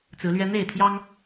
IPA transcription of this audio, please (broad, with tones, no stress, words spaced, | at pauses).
t͡sɹ̩˨˦lɥɛ˦ n̪e˥˨ɪ̯t̪ʰjɑ˦ŋ